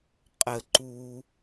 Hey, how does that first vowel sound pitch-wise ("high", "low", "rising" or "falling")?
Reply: low